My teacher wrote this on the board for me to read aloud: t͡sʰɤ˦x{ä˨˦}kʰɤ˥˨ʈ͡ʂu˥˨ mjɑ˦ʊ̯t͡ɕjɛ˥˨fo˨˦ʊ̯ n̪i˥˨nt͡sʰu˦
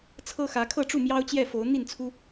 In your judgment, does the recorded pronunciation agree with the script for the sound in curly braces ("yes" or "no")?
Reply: yes